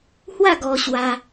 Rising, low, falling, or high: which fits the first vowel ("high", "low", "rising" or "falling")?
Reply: falling